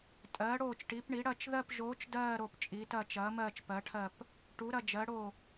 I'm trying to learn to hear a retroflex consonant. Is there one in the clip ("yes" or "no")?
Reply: yes